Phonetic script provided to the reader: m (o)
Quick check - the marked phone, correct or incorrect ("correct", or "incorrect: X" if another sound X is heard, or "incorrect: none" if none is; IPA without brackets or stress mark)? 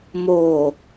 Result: correct